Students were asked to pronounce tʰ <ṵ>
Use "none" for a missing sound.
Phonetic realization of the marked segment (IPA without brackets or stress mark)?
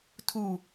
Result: u